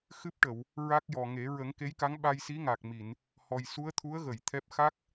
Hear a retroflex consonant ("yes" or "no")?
yes